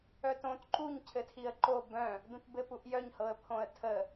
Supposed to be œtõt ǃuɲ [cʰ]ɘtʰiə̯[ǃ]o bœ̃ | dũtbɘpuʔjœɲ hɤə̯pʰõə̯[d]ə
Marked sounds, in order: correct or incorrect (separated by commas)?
correct, correct, incorrect